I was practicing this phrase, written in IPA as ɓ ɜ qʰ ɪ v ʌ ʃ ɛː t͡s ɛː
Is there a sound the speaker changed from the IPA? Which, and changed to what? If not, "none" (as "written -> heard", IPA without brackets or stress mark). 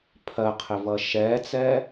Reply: ɓ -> pʰ